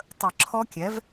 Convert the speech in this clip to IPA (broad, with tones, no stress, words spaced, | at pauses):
tˤə˨˩˦ǁʰɔ˦˥kʲɛ˩˥v